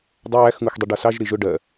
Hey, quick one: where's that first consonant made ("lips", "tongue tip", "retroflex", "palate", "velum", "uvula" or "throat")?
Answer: tongue tip